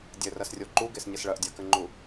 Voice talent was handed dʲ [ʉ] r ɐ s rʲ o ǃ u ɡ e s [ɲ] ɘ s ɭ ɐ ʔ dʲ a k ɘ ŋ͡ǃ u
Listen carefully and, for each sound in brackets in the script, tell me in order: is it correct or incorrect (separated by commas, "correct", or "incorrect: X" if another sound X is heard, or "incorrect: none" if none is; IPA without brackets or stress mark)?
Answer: incorrect: ɘ, correct